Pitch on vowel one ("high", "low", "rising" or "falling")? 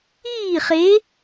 falling